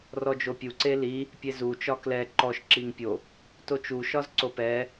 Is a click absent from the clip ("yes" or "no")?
no